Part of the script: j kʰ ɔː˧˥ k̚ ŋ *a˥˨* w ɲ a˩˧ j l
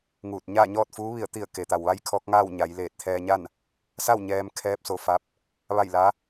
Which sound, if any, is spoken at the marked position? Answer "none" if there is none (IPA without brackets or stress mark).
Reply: aː˥˨